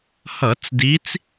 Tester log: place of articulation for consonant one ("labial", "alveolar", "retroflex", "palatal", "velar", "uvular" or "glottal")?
glottal